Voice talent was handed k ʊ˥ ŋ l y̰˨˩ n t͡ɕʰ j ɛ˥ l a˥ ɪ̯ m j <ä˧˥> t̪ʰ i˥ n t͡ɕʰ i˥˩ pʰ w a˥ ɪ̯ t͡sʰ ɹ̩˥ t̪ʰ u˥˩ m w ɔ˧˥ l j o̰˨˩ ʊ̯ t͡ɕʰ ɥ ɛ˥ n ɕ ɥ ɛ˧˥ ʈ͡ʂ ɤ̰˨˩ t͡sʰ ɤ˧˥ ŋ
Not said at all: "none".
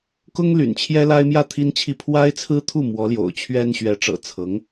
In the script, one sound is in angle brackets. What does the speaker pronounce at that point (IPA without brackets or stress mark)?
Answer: ä˥˩